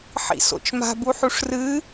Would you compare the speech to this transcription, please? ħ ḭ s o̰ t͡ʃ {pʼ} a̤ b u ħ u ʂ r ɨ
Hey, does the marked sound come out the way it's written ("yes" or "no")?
no